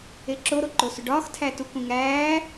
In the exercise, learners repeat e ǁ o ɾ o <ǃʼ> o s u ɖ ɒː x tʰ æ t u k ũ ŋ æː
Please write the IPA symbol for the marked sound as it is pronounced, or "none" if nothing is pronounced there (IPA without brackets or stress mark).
ǃ